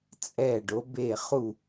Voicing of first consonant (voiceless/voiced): voiceless